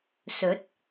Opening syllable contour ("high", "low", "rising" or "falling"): rising